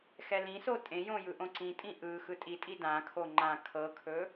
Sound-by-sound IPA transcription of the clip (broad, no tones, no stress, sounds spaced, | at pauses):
x ɛ l ĩ s o tʼ ẽ j õ j ɯ ʔ õ ǀ ĩ tʼ ĩ ʔ ɯ x ɯ tʼ i tʼ i d ã kʰ o ŋ͡ǃ ã kʰ ɤ kʰ ɵ